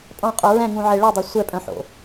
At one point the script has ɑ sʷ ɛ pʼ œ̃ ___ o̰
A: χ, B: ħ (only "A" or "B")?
B